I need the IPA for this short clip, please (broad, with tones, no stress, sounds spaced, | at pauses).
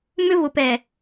m ʏ˦ v ʊ˨ p ɛ˨